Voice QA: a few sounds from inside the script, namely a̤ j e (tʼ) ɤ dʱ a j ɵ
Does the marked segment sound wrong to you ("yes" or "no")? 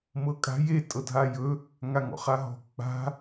no